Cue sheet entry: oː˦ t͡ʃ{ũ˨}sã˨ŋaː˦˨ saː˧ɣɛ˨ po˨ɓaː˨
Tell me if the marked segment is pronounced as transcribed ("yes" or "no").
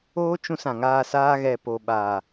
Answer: no